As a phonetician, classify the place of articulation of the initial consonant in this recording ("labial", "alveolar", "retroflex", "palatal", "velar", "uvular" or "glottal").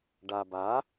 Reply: retroflex